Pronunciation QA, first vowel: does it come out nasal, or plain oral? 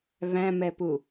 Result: nasal